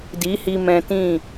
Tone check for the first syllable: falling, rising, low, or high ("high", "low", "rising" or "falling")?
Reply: rising